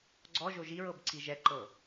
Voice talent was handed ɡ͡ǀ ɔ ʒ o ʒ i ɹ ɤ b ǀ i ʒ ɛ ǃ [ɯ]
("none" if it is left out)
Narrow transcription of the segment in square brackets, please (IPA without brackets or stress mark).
ɤ